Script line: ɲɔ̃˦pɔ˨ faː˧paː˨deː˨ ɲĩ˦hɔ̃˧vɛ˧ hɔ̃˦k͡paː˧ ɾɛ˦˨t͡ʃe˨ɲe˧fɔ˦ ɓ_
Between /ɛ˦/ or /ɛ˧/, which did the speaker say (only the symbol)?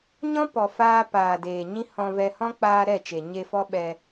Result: ɛ˧